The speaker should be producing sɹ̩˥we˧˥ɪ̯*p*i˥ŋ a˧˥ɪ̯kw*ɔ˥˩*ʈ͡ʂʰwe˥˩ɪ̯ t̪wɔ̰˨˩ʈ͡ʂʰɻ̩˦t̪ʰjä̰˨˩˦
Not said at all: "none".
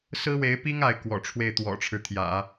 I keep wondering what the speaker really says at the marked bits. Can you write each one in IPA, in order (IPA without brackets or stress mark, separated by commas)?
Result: p, ɔ̰˨˩